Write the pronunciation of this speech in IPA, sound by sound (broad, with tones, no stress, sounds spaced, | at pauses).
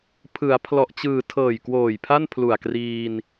pʰ ɯ˩˦ a̯ pʰ l ɔ˨˩ ʔ t͡ɕ ɯː˨˩ tʰ ɤː˨˩ j k w oː˨˩ j pʰ a˥˩ n pʰ l u˨˩ a̯ k r iː˧ n